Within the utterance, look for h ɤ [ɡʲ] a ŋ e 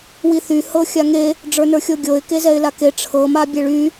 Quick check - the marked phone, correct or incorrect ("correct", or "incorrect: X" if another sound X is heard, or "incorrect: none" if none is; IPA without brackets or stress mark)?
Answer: incorrect: xʲ